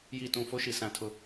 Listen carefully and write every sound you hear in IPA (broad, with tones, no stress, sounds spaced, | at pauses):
j i˦˨ t ũ˦˨ f o˦ ʃ i˨ s ã˦ tʰ ʊ˦